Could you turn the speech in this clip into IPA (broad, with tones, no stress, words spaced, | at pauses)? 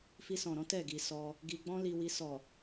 fi˧sɔ̃˨ɾɔ̃˨˦ tɛ˦˨ɡi˨ sɔ˧ | ɡi˧ɡ͡bɔ̃˦li˧wi˧ sɔ˨